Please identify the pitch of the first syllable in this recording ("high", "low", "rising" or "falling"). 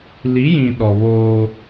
rising